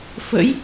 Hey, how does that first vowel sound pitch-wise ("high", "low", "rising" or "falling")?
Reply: rising